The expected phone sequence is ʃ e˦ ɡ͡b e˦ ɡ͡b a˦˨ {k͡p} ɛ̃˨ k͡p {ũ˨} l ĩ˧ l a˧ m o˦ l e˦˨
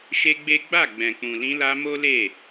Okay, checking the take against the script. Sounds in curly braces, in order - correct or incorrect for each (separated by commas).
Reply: incorrect, correct